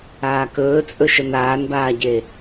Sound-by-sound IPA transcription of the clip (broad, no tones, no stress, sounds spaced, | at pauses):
aː k ɵː t͡sʼ ɵ ʃ ə n aː n b aː ɟ e